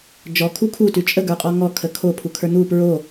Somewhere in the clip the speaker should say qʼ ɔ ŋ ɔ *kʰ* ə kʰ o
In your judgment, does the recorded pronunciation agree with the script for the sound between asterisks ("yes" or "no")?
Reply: yes